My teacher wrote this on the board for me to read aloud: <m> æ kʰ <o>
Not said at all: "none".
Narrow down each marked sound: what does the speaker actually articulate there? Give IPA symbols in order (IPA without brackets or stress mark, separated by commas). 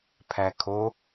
pʰ, o